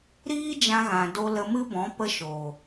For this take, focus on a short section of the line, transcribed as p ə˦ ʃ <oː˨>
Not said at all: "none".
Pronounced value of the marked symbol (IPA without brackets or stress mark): oː˨